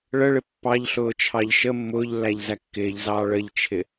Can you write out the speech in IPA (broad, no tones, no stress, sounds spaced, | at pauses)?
ɭ ə ɭ ɪ pː ɑ ʎ ɬ ʊː t͡ʃʰ ɑ ʎ ʃ ə mː ʊː ʎ lː æ ʎ z æ kː ɪː ʎ z ɑː ɭ ə ʎ t͡ʃʰ ɪ